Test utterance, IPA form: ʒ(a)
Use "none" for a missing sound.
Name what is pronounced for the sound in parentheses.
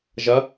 ɐ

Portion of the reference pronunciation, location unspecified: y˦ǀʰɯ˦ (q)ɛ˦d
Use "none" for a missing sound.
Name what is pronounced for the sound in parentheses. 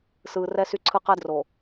q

